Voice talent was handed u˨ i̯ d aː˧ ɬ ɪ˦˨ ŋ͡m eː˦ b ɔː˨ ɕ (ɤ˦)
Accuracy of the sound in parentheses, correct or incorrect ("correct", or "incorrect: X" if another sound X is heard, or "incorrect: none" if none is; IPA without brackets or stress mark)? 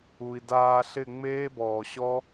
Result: incorrect: ɔ˦